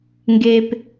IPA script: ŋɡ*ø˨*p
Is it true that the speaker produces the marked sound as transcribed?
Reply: no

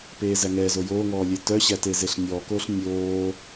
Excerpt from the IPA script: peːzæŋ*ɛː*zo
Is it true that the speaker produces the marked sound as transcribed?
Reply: yes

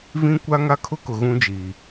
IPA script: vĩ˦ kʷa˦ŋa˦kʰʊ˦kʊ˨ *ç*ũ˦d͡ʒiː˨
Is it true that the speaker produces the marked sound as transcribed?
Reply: no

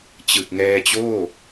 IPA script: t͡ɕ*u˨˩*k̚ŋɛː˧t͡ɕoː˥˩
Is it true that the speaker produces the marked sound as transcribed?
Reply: no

